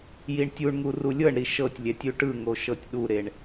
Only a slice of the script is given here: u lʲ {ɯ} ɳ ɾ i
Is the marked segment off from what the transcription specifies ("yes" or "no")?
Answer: yes